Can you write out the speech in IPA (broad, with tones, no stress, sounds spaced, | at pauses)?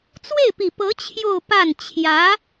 t͡s w e˥˩ ɪ̯ p i˨˩ p ɤ˧˥ t͡ɕʰ j o˥˧ ʊ̯ p a˥˩ n t͡ɕʰ j ä˧˥